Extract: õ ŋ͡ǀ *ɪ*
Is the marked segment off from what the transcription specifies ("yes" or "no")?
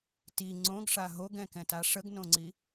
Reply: yes